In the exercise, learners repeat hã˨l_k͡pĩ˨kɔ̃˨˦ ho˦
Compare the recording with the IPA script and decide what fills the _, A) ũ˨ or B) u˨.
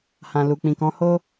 B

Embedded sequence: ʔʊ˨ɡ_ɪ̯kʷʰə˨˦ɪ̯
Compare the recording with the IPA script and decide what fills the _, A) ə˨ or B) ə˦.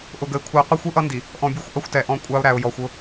A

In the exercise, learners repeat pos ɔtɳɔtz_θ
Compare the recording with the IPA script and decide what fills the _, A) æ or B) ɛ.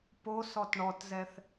B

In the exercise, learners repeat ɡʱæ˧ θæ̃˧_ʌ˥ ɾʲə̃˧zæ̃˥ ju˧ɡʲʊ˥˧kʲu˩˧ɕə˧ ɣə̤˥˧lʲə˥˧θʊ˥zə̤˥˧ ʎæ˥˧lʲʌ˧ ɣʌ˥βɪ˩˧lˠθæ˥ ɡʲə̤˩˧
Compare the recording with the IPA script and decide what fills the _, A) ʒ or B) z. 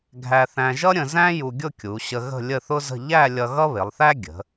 A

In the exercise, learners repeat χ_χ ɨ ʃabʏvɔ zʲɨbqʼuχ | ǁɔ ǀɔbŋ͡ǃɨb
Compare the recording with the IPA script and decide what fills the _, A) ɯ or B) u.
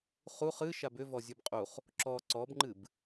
B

